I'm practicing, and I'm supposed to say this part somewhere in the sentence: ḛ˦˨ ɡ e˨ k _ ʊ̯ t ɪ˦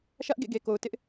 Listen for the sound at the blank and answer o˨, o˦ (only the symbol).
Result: o˨